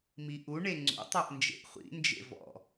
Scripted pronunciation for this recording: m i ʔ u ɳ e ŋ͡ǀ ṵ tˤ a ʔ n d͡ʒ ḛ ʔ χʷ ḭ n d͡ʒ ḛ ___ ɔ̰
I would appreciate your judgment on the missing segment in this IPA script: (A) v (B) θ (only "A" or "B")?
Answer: A